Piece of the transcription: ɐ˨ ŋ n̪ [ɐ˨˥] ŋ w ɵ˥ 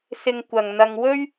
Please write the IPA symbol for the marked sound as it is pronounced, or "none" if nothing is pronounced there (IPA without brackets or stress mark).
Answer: ɐ˧